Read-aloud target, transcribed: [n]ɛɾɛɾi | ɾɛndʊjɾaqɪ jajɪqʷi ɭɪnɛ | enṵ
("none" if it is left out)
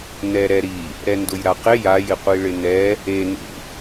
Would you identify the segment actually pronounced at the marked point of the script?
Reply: n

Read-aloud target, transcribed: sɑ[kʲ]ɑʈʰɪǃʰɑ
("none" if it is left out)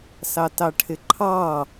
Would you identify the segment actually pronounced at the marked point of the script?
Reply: t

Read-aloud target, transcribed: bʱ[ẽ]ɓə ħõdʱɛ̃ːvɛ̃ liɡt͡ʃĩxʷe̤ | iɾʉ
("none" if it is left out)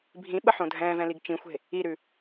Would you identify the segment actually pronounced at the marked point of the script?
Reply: ĩ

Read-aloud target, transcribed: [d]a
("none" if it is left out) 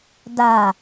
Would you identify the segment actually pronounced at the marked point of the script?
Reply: d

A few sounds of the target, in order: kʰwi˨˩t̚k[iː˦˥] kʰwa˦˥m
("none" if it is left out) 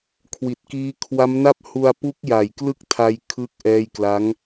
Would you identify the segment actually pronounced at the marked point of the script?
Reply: iː˦˥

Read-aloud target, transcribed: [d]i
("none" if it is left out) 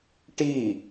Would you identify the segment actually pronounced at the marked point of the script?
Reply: ʈ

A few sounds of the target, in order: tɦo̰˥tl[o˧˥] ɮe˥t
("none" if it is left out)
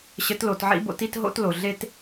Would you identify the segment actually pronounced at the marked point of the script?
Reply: o˩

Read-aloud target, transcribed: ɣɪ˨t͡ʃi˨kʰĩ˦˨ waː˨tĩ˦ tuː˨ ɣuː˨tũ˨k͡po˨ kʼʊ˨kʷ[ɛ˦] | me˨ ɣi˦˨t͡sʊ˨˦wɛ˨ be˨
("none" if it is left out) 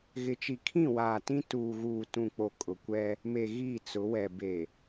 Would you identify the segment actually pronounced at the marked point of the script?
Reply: ɛ˦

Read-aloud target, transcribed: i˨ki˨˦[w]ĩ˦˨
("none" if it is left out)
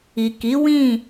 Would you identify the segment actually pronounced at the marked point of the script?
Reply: w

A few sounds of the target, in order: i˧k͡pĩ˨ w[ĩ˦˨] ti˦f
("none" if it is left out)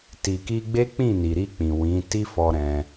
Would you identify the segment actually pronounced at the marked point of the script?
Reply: ĩ˨˦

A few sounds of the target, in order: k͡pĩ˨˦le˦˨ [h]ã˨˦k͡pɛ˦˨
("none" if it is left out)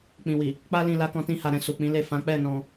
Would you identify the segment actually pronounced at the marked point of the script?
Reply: f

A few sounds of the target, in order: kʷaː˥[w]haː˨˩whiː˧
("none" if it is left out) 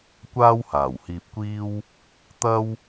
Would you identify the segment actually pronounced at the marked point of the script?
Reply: w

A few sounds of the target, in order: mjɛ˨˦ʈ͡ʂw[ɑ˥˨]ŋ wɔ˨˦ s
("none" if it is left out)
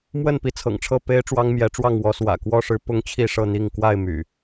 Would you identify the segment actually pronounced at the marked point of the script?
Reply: ɑ˥˨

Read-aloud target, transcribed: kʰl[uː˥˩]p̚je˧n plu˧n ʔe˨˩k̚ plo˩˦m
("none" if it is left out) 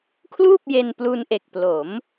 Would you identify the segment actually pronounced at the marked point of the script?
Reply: uː˥˩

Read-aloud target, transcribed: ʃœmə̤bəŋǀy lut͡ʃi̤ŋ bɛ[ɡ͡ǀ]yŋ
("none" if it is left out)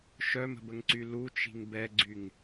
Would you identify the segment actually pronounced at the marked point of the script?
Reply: ɡ͡ǀ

